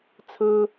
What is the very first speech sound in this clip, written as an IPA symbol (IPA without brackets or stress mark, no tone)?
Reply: t͡sʰ